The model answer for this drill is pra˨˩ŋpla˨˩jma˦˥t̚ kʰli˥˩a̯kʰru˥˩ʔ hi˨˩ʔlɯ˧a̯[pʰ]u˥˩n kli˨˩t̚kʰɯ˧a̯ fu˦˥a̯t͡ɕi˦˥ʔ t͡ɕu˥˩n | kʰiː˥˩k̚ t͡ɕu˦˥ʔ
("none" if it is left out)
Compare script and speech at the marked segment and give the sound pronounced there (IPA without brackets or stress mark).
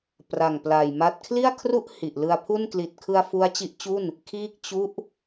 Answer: pʰ